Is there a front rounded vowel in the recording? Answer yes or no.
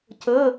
no